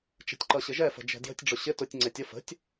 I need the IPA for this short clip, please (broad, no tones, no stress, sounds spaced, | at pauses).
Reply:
t͡ʃ ɛ̤ tʲ ǃ ʌ ɕ ɪ ʒ ɛ f ə̤ d͡ʒ ɛ̤ d j ə̤ tʲ ɖ͡ʐ ʊ ɕ ɪ t ʊ tʲ ŋ͡ǀ ɛ tʲ ə f ə̤ tʲ